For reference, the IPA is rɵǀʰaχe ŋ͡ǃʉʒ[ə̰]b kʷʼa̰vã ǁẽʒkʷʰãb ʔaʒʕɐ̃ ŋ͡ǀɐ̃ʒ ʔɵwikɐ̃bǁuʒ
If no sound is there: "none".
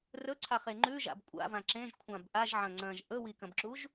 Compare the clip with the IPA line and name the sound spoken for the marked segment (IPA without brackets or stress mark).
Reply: a̰